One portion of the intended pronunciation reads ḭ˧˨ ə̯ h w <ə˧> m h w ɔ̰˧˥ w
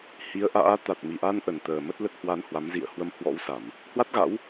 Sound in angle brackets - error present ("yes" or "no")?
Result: no